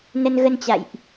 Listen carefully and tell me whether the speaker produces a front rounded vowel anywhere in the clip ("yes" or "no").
no